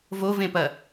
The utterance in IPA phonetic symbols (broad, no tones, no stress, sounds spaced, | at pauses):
v o v ẽ p ɐ